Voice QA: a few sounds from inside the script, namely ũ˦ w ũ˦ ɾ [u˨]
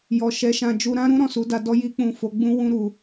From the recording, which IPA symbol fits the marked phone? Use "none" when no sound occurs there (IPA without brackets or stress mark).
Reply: u˧